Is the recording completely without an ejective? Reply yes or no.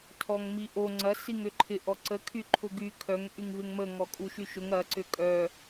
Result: no